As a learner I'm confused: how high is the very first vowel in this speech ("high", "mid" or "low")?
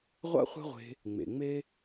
low